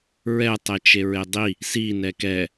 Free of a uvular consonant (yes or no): yes